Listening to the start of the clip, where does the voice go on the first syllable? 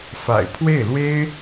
low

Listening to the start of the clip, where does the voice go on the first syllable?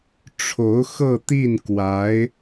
rising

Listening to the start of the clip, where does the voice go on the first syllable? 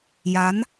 rising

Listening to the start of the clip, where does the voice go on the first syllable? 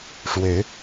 rising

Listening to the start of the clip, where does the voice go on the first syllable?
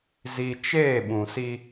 low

